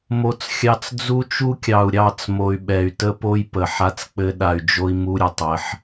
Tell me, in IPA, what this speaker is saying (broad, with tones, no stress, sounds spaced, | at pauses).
m o˦ t͡s xʲ ɑ˦ t͡s d͡z u˦ t͡ʃ u˦ kʲ ɑ˨ u̯ ɾʲ ɑ˦˨ t͡s m o˨ y̯ ɓ ɛ˨ y̯ t ə˦ p o˦ j p ə˨ ħ a˦ t͡s k͡p ɘ˦ ɗ a˨ y̯ d͡ʒ o˦ i̯ m u˦ ɾʲ ɘ˨ tˤ ɘ˨˦ ħ